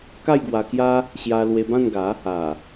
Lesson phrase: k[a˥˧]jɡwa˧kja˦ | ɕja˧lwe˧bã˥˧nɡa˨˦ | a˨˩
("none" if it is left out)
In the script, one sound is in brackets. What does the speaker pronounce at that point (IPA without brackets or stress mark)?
a˥˧